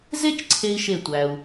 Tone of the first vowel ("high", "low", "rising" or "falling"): high